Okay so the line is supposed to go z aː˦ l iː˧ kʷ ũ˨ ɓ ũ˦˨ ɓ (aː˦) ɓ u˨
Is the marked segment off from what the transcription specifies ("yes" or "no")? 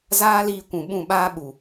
no